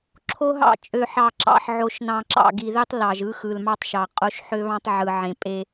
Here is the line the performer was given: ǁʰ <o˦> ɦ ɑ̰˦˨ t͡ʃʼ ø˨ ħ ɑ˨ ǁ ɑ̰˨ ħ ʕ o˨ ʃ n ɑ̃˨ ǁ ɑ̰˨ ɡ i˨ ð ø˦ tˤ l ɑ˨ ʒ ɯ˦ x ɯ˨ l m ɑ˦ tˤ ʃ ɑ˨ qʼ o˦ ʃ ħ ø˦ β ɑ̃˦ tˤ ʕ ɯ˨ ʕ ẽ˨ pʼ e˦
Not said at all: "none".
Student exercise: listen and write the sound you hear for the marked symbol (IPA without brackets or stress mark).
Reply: o˦